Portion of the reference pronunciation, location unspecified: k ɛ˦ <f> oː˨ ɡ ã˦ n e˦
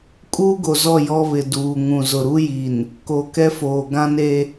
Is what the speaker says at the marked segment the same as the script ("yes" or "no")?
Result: yes